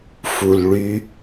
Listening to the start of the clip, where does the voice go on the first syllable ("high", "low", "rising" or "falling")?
low